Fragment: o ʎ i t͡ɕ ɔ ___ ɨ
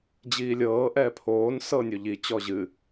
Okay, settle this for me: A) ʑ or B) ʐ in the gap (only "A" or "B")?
A